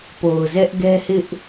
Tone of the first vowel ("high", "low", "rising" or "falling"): low